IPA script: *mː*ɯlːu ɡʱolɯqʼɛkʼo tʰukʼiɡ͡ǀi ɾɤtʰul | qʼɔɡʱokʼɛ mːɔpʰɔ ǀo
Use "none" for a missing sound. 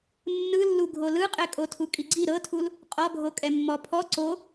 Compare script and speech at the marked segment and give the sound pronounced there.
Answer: nː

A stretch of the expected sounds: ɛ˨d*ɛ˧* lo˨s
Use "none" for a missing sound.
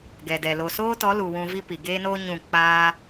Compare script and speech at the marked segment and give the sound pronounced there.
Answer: ɛ˨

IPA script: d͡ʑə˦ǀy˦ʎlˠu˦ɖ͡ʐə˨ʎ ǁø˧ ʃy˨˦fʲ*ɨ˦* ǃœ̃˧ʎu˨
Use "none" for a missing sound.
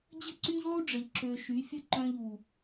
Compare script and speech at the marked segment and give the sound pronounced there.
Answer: ə˦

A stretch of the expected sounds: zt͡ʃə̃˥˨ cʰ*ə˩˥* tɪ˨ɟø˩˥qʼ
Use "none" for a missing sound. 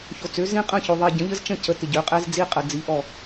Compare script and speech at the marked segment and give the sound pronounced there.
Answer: ə˩˥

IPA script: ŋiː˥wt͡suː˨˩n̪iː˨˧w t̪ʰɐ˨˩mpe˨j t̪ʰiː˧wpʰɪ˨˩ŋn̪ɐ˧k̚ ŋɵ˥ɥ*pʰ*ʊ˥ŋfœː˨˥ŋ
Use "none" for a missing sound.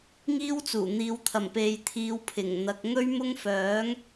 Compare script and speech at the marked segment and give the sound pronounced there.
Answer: m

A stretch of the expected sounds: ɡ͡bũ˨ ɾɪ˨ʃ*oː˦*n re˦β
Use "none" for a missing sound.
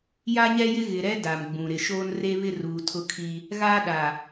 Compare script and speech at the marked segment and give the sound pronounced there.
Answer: oː˦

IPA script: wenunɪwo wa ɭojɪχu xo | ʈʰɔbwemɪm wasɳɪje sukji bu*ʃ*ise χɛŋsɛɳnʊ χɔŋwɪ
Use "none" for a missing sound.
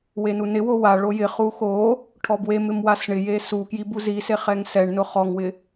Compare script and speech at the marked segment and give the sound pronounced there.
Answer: z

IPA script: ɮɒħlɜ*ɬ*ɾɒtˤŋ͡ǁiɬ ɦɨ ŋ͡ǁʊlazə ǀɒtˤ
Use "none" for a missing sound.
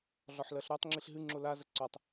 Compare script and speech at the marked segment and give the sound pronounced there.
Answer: ɬ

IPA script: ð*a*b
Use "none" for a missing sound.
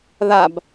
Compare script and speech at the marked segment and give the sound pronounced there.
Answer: a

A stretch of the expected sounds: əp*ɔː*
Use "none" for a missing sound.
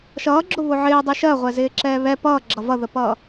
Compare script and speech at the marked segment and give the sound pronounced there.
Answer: ʌː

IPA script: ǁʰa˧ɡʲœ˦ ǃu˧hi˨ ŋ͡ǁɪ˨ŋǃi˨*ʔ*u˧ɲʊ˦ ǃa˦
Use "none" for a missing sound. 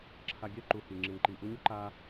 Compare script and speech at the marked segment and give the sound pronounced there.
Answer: ʔ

